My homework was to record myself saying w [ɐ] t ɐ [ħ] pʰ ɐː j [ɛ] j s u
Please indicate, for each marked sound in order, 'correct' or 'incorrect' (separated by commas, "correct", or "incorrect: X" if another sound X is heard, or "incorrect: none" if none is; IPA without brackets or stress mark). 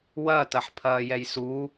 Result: correct, correct, correct